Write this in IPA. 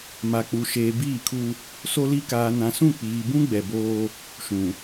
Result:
ma˨k͡pu˨ ʃeː˨biː˦˨kʰu˦ | so˦li˦ kaː˨nã˨sũ˦˨ k͡piː˨bũ˦ ɡ͡bɛ˨boː˦ | ʃũ˨

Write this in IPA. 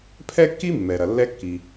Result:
pʰɛ˥kːi˥ mːɛ˩ɾɐ˩ lːɛ˧kːi˩

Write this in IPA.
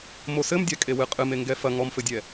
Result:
mosɘmdʲa kʼewɨqʼɨme ŋɡɛfɐ ŋɔmfɘdʲɛ

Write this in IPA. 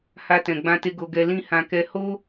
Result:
ha˧ tɛ̃˨ɡ͡bã˧te˧ ɡo˧ɡɛ˧lĩ˦ hã˧kɛ˦ ho˦

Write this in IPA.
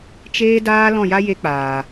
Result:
t͡ʃeː˦daː˦ lɔ̃˦˨ja˦je˧k͡paː˨

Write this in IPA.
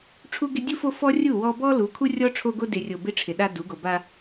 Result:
ʈ͡ʂʰu˦ɡɪ˦ dʲu˦fo˦fɔ˦ rʲu˦˨wɔ˦ bɔ˦ lu˨˦ kʰu˦rʲɔ˦ ʈ͡ʂʰo˦ɡo˦ dɪ˨rʲo˨ bɪ˦ʈ͡ʂʰɪ˨ ɗa˦du˨˦ɡo˨ ba˦

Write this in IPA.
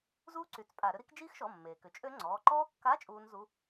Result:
zuː˦˥ǀy˩˧˩t͡s pʼa˧˩˧ɾʏ˦˥ ɾi˦˥k d͡ʒiː˦˥xʃɔ˩˧˩ mːeː˩kʏ˩˧˩t͡ʃʼø˦˥ ŋ͡ǀɔː˩˧˩ ǃɔː˦˥kːa˧˥˧ t͡ʃʼuː˦˥nzu˧˥˧

